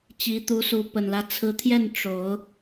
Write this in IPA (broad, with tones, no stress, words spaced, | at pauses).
t͡ɕi˨˦t̪u˨˦ su˨˦ pə˨˩nlä˦ t͡sʰɹ̩˨˦t̪ʰjɛ˥˨n ʈ͡ʂo˨˦ʊ̯